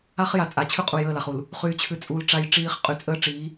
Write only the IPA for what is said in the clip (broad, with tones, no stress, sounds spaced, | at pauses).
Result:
a˦ χ j a˨ t͡sʼ a˨ t͡ɕʰ ʉ˦ qʼ u˨ j əː˦˨ l a˨ χ u˨ l | χ yː˨ t͡ɕʰ ʉ˨ t͡sʼ u˨ l ʈ͡ʂ a˦ j ʈ͡ʂ iː˦ χ qʼ y˨ t͡sʼ əː˦ ʈ͡ʂ iː˨˦